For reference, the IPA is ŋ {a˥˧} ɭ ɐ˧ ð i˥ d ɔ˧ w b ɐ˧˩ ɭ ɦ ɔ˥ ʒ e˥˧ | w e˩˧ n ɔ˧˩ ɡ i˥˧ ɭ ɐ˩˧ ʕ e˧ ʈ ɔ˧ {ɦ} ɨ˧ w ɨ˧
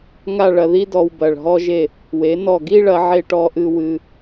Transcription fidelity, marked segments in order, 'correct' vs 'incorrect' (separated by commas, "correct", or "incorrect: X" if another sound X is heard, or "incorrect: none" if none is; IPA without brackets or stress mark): correct, incorrect: ʔ